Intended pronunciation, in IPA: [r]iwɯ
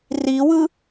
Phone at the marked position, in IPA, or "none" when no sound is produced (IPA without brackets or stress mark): r